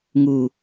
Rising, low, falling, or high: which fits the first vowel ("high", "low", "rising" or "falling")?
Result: low